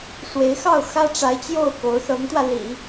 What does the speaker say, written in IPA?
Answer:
ʂ w e˧˥ ɪ̯ x ɑ˥˩ ʊ̯ x ä˥ ʈ͡ʂ a˧˥ ɪ̯ t͡ɕ j o˥˩ ʊ̯ k o˧˥ ʊ̯ s ɤ˧˥ ŋ t̪ w ä˧ l ḭ˨˩˦

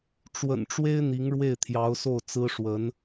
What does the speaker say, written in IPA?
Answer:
ʈ͡ʂ w ə̰˨˩ n ʈ͡ʂ w e˥ ɪ̯ n̪ i˧˥ ŋ ɻ w e˥˩ ɪ̯ t̪ʰ j ɑ˧˥ ʊ̯ s o˥˩ ʊ̯ t͡s ɹ̩˥ ʂ w ə˧˥ n

